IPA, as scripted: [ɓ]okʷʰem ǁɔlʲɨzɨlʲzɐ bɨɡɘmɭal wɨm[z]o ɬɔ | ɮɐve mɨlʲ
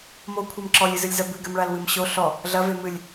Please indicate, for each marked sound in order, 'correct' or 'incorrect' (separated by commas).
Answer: incorrect, incorrect